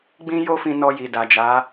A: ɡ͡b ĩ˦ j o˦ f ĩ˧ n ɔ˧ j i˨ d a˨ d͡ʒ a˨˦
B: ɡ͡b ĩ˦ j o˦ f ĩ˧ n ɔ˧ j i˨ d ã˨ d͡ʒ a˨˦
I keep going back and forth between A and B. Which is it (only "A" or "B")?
A